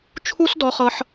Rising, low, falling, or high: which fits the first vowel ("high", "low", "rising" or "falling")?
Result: high